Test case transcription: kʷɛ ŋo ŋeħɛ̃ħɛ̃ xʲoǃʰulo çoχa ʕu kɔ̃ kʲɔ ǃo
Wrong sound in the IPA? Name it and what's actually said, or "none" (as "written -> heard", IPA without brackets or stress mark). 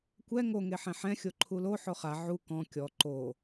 ç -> ħ